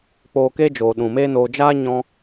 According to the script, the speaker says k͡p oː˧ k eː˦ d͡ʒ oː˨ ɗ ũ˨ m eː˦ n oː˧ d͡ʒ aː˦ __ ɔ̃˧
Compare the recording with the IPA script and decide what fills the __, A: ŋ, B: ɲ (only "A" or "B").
B